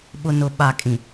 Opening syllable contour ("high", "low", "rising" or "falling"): low